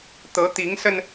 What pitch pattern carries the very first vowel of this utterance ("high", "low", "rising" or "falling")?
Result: rising